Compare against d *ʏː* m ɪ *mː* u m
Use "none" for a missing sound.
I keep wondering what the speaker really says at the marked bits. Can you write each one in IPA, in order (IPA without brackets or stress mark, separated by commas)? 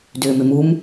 ʏː, m